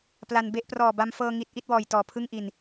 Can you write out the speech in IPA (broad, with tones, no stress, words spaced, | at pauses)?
pla˧nbe˥˩ʔ prɔː˨˩ba˧mfɤː˧ ŋi˦˥t̚ ʔi˥˩t̚wɔː˨˩jtɔː˨˩pʰɯ˥˩ŋ ʔi˧n